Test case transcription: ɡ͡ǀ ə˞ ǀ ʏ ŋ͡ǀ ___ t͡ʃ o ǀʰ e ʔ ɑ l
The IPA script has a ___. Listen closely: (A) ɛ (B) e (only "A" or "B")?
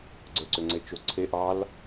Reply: B